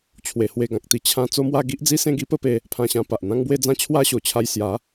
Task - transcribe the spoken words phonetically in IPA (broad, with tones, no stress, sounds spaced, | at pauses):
t͡ɕʰ w e˧ h w e˧ ɡ ã˨ k̚ t̪ i˧ t͡ɕʰ ã˦ t͡s o˦ m w a˥˧ ɡ i˦ ʔ d͡z i˦ s ẽ˥˧ ɡ i˦ p ə˦ p e˧ | pʰ ã˧ ɕ ã˧ p a˨ ʔ n̪ ã˦ ŋ b w e˦ d͡z ã˥˧ t͡ɕʰ w a˦ ɕ o˨˩ t͡ɕʰ a˧ j s j a˨˦